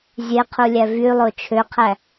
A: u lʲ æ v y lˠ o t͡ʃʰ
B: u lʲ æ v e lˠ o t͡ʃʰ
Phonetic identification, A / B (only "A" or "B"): A